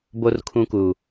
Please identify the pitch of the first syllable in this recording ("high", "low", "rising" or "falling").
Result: high